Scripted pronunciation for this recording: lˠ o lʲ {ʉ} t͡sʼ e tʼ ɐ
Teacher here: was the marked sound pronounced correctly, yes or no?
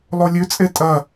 yes